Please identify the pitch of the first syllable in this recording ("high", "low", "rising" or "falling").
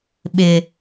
low